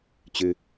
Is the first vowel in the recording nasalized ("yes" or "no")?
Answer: no